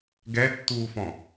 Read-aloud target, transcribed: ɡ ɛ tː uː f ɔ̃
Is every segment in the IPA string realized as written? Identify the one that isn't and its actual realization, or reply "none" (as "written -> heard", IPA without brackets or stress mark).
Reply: none